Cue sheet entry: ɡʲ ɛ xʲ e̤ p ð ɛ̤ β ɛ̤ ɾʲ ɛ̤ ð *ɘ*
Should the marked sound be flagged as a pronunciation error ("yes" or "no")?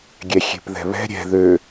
yes